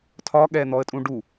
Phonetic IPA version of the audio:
tʰ ɒ ɠ ɛ n̪ ɔ ə̯ tʼ ũ ɖ u

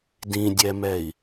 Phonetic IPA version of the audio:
d ĩ dʲ ɛ m ɛ i̯

